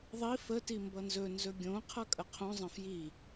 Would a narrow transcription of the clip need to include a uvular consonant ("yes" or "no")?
yes